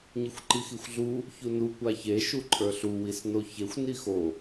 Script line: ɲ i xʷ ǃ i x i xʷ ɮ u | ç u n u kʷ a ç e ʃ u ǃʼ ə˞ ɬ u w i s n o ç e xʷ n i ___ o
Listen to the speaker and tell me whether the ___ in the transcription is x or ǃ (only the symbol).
x